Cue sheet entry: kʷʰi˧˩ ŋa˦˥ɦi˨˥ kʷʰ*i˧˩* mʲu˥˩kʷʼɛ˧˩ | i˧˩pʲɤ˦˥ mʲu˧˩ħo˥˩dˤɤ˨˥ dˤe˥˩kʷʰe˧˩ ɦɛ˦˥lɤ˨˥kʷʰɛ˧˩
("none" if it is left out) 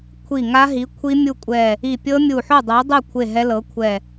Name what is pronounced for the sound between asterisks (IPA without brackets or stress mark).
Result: i˦˥